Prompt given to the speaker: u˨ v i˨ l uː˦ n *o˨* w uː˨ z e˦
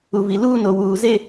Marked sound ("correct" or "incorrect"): correct